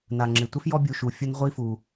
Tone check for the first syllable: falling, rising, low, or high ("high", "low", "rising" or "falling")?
low